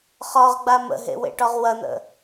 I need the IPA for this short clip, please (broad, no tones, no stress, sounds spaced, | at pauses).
χ ɒ ʁ ɡ͡b a m ə̰ ɦ ḛ w ḛ ʈ ɒ ʁ w ɐ n̪ ə̰